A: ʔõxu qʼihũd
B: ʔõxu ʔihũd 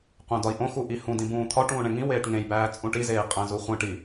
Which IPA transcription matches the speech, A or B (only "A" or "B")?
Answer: B